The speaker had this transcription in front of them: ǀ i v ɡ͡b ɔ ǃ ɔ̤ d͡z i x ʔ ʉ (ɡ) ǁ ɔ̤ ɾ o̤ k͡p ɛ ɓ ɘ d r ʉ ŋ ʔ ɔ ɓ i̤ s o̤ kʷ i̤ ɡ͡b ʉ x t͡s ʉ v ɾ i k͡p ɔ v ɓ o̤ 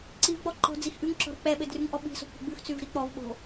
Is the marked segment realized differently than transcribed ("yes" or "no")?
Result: yes